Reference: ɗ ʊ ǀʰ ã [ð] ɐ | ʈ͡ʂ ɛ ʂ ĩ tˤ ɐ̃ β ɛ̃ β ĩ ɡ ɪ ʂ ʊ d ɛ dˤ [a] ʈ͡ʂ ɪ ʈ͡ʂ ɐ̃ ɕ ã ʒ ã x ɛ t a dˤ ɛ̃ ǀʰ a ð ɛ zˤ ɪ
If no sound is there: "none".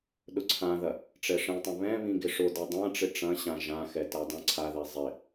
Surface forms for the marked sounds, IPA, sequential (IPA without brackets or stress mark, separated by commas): ð, ã